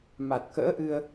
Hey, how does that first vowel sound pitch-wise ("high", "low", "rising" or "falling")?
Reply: low